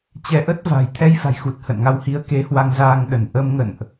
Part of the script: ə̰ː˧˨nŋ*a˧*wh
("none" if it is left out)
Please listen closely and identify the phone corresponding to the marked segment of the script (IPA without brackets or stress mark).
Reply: a˧